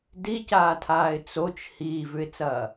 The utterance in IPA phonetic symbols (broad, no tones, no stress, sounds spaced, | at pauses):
d i c aː tʰ aː ɪ̯ t͡s o t͡ʃ h iː v ʉ ɪ̯ t͡s ɐː